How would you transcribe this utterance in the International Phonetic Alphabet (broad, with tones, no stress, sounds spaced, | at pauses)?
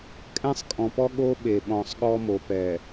kʼ ɛ̃˦ sˤ kʼ ɔ̃˨ p ɔ˦ ɠ o˦ ɓ e˨ ɓ ɔ̃˨ sˤ ɠ ɔ˦ m o˨ p ɛ˨